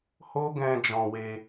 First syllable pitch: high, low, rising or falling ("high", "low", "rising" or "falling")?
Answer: high